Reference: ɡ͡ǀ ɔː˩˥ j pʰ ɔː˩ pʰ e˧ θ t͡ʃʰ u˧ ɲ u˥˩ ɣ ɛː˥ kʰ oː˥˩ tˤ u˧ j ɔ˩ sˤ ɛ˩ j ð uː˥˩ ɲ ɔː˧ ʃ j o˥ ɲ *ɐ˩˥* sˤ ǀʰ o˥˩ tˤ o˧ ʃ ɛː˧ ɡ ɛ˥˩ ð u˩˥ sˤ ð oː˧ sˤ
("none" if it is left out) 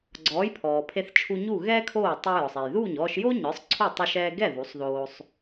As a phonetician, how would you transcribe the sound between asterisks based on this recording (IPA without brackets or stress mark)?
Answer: ə˞˩˥